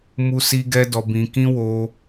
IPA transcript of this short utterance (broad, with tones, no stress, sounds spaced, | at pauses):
m u˦ s i˦ ɡ ɛ˦ d ɔ˧ b ĩ˧ k ĩ˦ w o˧